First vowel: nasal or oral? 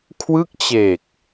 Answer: oral